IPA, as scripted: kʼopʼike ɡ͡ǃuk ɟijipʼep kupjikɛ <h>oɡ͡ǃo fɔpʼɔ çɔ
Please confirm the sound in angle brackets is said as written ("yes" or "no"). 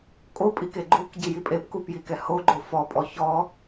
yes